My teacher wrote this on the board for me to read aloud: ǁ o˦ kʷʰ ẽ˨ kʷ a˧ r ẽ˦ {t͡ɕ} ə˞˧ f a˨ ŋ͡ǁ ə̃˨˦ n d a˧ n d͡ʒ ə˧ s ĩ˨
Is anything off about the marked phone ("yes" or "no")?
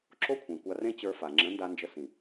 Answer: no